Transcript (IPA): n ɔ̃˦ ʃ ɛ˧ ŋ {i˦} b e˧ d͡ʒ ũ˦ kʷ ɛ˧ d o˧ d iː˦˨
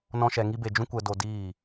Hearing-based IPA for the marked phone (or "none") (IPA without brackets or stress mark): i˦